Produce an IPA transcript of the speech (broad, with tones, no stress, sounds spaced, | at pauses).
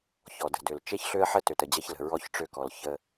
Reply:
ç ɔ˨ d ə̤˨ d ø˨ l t͡ʃ e˦ ç ɬ ø˦ ə̯ ħ ə˦ t ø˨ t ə˨ d͡ʑ ɐ˦ ç l ə̤˨ ɹ ɔ˦ ç ʈ͡ʂ ø˦ k ɔ˨ l ç ə˦